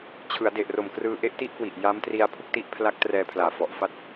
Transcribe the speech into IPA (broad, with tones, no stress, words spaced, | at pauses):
t͡ɕʰɯ˩˦a̯de˨˩ʔro˨˩m krɯː˧ʔe˥˩ʔti˥˩ʔkwi˨˩ʔ ja˦˥mtri˧a̯ pʰu˥˩k̚ti˦˥ʔ pʰla˦˥k̚ trɛː˧pʰlaː˨˩fɔ˨˩ʔ fa˥˩t̚